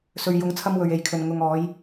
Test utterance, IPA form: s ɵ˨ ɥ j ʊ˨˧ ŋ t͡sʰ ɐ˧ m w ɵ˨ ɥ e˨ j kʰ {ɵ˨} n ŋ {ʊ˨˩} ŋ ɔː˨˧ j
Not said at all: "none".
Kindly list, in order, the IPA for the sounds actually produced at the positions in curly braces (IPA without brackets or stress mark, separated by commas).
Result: ɵ˨, ʊ˨